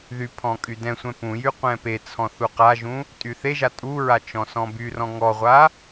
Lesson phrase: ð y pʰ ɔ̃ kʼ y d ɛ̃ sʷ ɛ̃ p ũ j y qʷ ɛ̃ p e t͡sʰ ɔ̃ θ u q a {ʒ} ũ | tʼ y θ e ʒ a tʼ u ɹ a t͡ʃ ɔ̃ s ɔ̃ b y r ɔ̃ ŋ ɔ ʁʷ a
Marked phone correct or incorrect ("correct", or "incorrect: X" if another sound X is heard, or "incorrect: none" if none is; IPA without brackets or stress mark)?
correct